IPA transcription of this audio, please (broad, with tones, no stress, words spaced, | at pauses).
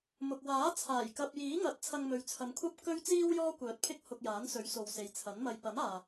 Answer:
mʊ˨k̚waː˨˥ t͡sʰaː˨˩jkɐ˧p̚jiː˨˥ ŋɐ˨˥t̚ t͡sʰɐ˧ŋmɵ˨ɥt͡sʰɐ˨˧mkʷʰɐ˥p̚ kɵ˥ɥt͡siː˥w jɔː˥kʷœː˨˥t̚pʰɪ˥k̚ hʊ˧k̚jaː˨˥nsɵ˨˥ɥso˨w se˨jt͡sʰɐ˨˥nmɐ˧j pɐ˨˥maː˨